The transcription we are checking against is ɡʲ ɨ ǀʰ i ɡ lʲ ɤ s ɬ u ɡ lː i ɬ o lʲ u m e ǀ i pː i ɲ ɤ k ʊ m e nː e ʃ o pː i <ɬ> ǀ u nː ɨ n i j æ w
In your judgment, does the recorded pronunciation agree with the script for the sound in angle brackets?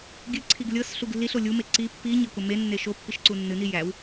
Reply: no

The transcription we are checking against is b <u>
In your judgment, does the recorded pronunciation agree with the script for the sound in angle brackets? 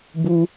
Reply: yes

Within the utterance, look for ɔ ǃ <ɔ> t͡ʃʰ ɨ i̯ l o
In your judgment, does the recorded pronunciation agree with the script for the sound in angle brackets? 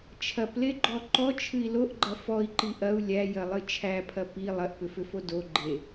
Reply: yes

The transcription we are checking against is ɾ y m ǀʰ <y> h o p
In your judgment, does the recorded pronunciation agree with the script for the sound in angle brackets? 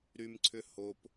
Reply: no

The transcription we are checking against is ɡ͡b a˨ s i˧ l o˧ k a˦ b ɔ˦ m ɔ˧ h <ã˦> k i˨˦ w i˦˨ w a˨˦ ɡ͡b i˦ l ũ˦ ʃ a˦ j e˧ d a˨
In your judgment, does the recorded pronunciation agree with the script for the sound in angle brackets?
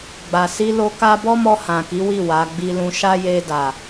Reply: no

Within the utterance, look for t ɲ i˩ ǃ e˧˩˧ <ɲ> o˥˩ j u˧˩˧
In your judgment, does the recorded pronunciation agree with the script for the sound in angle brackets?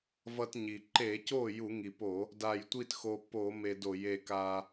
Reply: no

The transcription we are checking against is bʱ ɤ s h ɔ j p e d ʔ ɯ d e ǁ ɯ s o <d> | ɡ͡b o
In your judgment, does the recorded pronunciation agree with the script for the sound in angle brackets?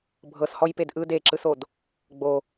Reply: yes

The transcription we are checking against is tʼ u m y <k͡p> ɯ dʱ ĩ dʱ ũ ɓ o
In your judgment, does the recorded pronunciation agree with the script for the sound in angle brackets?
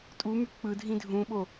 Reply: yes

